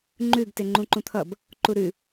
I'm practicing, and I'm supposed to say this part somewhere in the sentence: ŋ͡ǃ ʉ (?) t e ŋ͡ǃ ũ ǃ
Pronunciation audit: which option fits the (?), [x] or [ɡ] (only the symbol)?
ɡ